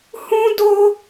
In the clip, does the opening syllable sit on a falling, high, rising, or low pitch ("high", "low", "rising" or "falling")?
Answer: high